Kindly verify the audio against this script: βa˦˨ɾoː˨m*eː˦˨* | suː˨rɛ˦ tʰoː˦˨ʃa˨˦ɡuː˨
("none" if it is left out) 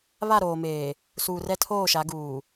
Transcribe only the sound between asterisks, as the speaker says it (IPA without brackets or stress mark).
eː˨